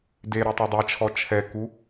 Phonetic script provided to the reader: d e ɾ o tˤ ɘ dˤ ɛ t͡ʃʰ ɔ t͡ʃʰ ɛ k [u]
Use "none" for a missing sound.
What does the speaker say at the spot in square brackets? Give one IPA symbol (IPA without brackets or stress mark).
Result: u